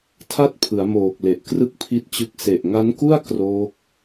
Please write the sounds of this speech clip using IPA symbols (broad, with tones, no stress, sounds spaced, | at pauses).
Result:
tʰ a˥˩ t̚ pʰ ɯ˩˦ a̯ m oː˨˩ k̚ l e˨˩ ʔ k r ɯ˥˩ k̚ pʰ i˦˥ t̚ t͡ɕ ɯ˦˥ k̚ s e˨˩ ʔ ŋ a˦˥ n k u˥˩ a̯ k r oː˦˥ k̚